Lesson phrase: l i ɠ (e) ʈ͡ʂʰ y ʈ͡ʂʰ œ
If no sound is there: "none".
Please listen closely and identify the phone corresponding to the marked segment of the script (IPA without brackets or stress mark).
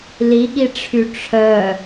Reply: i